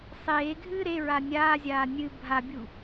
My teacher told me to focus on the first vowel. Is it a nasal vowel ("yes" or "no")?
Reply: no